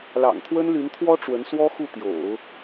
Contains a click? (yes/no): no